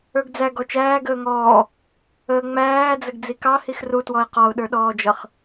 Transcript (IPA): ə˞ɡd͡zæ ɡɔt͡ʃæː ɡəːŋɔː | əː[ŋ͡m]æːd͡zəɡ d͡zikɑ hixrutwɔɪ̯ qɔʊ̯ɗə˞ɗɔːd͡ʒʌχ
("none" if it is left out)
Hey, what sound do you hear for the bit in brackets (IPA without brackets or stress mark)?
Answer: ŋ͡m